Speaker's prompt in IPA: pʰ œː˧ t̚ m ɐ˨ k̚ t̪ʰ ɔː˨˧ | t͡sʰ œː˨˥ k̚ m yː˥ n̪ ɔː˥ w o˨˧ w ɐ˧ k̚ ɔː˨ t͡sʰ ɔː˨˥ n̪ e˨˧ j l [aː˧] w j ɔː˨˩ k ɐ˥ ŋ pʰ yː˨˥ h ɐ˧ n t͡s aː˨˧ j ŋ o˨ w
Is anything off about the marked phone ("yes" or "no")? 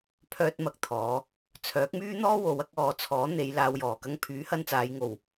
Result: no